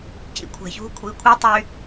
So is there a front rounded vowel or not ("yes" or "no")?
yes